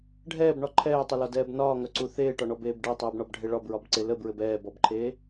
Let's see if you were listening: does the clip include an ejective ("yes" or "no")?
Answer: no